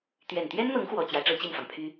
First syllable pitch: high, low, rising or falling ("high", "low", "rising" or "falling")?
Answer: low